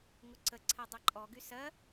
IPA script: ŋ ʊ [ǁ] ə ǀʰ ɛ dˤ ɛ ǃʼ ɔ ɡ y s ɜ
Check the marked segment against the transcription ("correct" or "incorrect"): incorrect